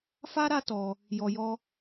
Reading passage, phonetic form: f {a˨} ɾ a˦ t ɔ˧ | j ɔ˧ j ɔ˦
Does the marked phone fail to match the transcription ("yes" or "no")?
yes